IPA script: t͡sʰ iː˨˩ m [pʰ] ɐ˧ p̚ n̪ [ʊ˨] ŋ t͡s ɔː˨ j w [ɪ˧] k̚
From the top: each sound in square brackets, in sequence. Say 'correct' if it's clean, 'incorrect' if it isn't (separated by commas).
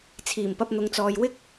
incorrect, correct, incorrect